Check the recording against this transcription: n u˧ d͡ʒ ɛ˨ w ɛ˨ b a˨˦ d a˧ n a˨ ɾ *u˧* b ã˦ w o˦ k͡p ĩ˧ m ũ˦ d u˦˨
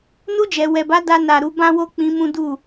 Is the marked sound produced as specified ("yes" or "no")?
no